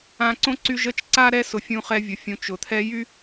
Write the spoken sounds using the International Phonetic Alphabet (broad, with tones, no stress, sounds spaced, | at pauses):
ã˦ ǀ õ˥ ǀ y˦ ʒ ə˦ t͡ʃ ǀ a˥ ɾ ɛ˦ s ʊ˨ fʲ ũ˦ χ ɛ˦ vʲ ʊ˨ fʲ ũ˨ t͡ʃ ʊ˩ t̪ʰ ɛ˦ j y˥